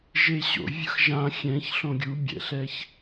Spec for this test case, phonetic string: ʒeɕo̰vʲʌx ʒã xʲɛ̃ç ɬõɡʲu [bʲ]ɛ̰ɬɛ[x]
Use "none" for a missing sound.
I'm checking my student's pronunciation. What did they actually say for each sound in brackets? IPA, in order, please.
bʲ, ç

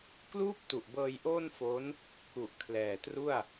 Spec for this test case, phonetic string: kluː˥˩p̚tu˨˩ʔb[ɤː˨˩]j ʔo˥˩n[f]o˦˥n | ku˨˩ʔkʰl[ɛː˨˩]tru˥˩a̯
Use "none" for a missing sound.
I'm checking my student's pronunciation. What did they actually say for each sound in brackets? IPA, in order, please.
ɤː˧, f, ɛː˨˩

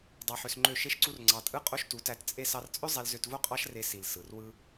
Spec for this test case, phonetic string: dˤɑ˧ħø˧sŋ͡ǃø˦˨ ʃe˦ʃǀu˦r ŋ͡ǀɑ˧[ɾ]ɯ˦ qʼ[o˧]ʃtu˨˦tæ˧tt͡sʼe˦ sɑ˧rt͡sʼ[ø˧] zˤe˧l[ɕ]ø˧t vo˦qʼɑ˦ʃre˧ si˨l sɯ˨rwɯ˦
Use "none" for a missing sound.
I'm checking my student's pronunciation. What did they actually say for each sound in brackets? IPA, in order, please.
tʼ, o˦, ø˦, z

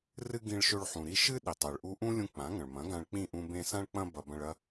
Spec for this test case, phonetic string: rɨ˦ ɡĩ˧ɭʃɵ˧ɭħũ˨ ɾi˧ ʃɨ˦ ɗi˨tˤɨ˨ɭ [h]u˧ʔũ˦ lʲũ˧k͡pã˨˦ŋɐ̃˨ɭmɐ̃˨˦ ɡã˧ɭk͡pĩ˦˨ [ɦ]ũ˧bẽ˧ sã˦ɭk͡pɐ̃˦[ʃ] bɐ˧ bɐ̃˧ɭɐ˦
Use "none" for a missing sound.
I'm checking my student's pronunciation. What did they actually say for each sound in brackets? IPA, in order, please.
ʔ, ʔ, none

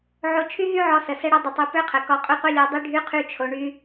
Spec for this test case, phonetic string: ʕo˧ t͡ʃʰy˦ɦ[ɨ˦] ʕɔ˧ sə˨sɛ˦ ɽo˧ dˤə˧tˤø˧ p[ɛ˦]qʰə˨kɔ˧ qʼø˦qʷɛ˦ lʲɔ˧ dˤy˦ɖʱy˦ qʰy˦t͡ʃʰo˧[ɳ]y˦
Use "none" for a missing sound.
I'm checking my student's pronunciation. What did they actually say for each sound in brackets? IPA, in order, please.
y˦, ø˦, ɳ

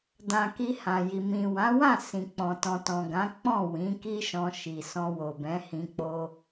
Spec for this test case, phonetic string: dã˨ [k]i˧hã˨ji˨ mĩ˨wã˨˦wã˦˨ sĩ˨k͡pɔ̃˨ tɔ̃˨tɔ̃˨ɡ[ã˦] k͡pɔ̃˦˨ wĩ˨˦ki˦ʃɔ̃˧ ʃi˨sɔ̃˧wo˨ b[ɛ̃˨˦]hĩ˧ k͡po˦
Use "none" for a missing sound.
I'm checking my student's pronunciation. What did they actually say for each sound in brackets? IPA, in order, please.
k, ã˨˦, ɛ̃˨˦

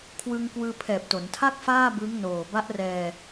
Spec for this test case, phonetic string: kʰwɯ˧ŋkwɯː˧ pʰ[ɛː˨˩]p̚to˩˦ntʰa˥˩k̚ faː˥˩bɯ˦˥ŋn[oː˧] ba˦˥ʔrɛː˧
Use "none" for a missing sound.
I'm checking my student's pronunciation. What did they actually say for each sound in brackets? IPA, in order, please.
ɛː˨˩, oː˨˩

